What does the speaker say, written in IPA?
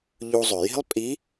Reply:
ʎu˧zˤø˩ ji̤˥lˠpʼi˧˥

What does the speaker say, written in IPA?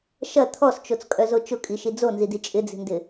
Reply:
ʃɐ t̪ʰɔst͡ʃot͡skʼœzo t͡ʃʊkʼiʃi d͡zonzidi t͡ʃʼɪd͡zi̤ndɪ

